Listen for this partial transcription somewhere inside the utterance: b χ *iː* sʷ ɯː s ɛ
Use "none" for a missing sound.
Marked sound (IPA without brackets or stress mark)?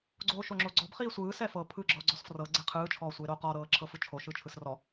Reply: iː